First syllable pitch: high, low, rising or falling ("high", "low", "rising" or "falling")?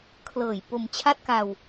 low